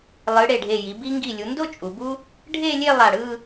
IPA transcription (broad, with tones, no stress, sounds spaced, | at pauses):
lˠ ɯ˩˧ ɽ e˧˩ ɖʱ e˧˩ j i˩˧ b i˧ ŋ ɡ i˧˩ lʲ u˩˧ n d o˥˧ t͡ʃʼ u˩˧ b u˥ | ɖʱ e˥˧ lʲ e˥˧ lˠ a˧˩ ɽ ɯ˥˧